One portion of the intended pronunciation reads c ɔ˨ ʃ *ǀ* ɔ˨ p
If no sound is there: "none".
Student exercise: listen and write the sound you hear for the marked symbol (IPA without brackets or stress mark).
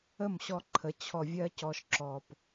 ǁ